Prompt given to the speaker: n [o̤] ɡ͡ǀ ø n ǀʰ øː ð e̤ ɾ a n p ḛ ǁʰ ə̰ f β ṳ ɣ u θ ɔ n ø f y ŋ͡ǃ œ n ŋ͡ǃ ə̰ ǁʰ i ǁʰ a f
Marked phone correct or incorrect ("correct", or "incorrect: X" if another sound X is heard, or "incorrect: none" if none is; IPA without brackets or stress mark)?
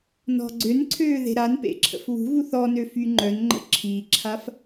incorrect: ɔ̤